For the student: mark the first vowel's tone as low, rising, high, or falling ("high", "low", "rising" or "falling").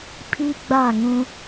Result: high